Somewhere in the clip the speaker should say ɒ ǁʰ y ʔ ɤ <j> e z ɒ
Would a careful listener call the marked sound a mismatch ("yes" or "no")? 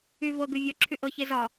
yes